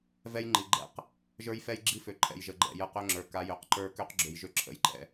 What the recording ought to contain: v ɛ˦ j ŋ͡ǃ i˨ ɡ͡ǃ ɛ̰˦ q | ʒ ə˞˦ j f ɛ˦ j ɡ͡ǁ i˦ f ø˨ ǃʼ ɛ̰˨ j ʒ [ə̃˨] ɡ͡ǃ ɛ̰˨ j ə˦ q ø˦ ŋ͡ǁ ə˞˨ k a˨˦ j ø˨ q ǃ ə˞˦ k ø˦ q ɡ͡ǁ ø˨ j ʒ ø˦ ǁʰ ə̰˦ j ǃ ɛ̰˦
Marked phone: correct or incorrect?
incorrect